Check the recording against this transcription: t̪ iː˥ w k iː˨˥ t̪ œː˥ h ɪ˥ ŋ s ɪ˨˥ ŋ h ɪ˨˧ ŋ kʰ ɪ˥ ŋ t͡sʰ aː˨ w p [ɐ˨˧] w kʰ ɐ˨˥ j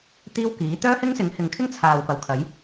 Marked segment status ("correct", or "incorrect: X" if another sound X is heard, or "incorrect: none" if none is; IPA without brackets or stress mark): incorrect: ɐ˨˥